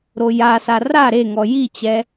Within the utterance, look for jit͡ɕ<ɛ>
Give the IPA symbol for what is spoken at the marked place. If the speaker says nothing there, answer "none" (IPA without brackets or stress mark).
ɛ